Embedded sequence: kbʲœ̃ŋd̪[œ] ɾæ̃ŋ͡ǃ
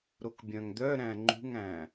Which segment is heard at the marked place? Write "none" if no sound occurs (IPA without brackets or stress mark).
œ